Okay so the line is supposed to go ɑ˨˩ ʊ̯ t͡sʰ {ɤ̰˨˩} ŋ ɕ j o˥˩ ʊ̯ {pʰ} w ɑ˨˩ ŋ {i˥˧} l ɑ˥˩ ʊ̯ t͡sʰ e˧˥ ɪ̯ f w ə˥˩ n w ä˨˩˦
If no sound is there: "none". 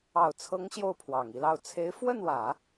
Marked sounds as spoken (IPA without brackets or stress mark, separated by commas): ɤ˧˥, pʰ, i˥˧